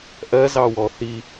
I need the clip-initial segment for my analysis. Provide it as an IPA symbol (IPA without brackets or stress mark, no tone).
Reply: ʔ